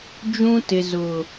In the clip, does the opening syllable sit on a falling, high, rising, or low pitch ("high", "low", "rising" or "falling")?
high